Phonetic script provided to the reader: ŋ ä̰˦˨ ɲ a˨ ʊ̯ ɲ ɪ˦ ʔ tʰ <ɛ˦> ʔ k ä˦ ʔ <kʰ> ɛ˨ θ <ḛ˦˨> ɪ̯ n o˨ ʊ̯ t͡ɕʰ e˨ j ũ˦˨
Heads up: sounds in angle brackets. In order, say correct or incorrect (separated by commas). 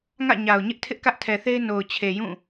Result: incorrect, incorrect, incorrect